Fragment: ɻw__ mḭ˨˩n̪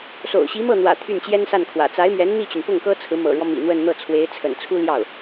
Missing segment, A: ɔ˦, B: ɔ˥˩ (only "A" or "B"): A